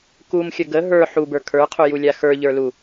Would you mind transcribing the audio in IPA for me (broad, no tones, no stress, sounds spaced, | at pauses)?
k u m xʲ ə ɡ ə ɦ ə˞ ħ u b ə˞ kʰ ə˞ qʰ u j u lʲ a x ə˞ ʎ ə˞ l u